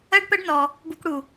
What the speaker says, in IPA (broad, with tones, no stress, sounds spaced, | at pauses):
ɜ˥ ɖ p ə˥ ɖ n ɔ˧ | b u˥ k ɽ u˧